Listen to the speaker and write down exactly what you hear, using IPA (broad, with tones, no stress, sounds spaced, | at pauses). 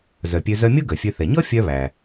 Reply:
z œ˩ pʲ ø˧ z œ˧ mʲ o˥ ɡ œ˩ fʲ ø˧ θ ɛ˩ ɲ ɔ˥ fʲ œ˧ β æ˩